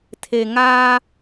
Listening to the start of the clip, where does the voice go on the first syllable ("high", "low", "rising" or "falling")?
low